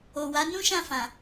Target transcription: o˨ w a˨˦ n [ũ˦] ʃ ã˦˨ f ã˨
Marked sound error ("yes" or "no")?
no